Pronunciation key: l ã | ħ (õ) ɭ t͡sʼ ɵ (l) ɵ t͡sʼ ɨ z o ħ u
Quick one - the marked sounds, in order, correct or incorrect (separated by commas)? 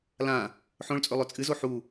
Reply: correct, incorrect